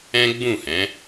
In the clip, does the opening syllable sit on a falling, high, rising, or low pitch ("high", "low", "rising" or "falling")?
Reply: high